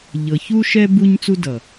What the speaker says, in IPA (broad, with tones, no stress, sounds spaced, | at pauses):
ʎ ɤ˨ ç u˦ ʃ ɛ˦ b u˦ ɲ t͡s u˦ d ʌ˨